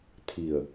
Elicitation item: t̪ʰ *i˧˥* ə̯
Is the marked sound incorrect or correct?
incorrect